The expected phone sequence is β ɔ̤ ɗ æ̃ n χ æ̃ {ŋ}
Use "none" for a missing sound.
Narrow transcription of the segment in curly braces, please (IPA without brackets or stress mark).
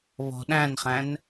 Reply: n